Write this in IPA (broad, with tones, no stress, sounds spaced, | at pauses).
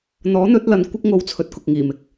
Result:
n̪ ɔː˨˥ n̪ ɵ˨˥ t̚ l ɐ˨˧ n kʷ ɪ˥ k̚ ŋ o˧ w t͡sʰ ɵ˨ t̚ k ʊ˨ k̚ ŋ iː˨˩ m ɪ˨ k̚